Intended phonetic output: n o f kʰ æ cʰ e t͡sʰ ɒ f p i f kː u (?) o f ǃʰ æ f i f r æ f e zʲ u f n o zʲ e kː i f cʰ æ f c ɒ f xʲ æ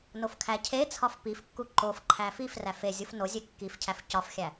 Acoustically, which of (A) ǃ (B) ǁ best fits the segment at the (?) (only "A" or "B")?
A